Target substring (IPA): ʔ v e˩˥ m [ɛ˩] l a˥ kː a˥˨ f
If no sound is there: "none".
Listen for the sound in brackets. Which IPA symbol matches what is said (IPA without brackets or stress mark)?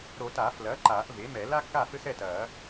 ɛ˨˩˦